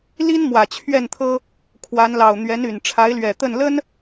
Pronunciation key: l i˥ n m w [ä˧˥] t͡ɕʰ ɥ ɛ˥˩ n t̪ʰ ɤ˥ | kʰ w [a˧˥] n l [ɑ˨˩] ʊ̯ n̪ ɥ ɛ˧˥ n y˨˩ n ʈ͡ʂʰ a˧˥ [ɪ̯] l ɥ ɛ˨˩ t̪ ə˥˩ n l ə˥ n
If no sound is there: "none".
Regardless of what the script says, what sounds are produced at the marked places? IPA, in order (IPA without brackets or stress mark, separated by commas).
ä˨˩, a˧˥, ɑ˨˩, ɪ̯